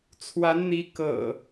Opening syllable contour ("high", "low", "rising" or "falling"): rising